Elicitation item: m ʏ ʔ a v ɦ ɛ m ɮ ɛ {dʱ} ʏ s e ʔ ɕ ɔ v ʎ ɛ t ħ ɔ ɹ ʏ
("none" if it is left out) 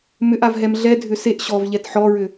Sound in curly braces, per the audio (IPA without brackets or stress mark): dʱ